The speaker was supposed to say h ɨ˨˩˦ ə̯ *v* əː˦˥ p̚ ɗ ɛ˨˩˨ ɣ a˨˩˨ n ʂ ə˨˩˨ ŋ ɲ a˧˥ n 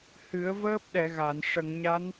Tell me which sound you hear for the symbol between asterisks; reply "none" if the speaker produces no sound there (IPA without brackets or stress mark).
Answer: v